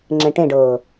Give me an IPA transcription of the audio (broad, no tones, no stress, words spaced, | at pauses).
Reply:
ŋ͡ǁɛ̃ʈẽɖɤː